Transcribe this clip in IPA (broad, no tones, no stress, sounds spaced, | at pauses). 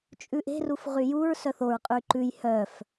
t͡ʃʼ ʉ ʔ e̤ r u f ʁ y j u ɹ s œ θ o ɹ qʼ y ǃ ʉ j h œ f